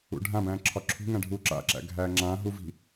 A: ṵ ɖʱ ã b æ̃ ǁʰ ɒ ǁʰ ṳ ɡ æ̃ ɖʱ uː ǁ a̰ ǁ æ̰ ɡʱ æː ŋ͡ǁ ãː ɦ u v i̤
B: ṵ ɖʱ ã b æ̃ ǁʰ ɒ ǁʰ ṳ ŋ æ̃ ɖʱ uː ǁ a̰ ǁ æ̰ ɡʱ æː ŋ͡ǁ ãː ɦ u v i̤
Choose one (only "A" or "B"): B